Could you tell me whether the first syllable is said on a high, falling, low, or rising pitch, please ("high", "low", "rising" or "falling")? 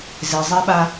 low